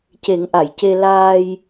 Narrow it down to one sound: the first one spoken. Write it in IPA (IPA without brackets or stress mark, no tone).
c